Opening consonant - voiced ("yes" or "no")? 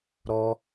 yes